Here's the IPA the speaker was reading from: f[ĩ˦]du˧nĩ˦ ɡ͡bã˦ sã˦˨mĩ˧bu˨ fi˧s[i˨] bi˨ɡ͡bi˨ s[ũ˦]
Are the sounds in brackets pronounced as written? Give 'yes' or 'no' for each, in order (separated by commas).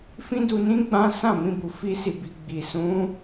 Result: yes, yes, no